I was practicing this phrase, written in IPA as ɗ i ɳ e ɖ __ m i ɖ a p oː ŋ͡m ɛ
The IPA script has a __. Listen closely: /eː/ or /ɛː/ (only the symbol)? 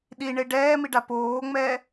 ɛː